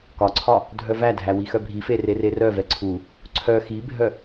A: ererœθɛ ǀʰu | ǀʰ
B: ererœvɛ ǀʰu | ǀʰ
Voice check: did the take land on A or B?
B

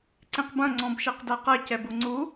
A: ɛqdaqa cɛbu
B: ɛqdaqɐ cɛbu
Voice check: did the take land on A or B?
B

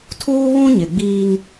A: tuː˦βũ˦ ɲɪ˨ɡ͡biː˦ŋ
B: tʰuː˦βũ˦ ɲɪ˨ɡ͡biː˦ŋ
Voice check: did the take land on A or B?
B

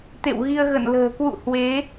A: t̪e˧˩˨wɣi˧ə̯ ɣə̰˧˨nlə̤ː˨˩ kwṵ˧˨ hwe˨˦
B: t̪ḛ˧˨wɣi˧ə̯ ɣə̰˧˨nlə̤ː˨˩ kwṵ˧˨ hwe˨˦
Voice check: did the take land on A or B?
B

